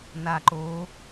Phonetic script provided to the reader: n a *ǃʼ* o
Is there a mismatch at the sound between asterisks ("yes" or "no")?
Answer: yes